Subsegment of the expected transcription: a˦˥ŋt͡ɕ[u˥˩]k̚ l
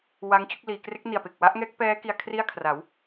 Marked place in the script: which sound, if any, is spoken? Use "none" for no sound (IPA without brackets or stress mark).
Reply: u˥˩